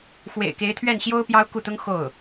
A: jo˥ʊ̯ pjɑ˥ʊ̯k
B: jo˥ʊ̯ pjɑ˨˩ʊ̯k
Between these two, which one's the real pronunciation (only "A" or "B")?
A